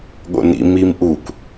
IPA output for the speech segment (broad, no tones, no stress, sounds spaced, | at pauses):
ɠ o̰ n ḭ m i m ʔ u kʷ